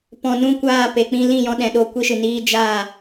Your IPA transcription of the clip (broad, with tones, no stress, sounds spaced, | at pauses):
p ɔ̃˨ n ũ˦˨ kʷ aː˦˨ p e˨ k͡p ĩ˧ l ĩ˦˨ j ɔ̃˧ ɗ ɛ̃˨ ɗ o˧ kʷ i˧ ʃ ɨ˨ n iː˧ d͡ʒ aː˦˨